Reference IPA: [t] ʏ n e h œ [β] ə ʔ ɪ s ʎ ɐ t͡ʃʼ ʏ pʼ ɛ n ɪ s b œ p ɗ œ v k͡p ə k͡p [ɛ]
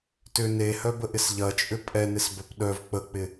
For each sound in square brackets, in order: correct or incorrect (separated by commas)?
correct, incorrect, incorrect